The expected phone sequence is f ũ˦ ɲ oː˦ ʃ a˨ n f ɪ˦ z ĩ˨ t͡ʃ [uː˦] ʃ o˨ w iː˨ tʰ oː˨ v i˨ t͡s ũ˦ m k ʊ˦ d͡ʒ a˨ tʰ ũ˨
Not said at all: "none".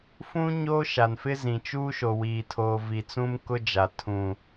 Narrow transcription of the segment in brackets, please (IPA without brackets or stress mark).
uː˦